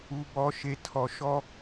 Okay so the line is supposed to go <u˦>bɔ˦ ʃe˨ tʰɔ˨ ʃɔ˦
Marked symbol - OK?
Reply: yes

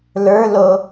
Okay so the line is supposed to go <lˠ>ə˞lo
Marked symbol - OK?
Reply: no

